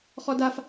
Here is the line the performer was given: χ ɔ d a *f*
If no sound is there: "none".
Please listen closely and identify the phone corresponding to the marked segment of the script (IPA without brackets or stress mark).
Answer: f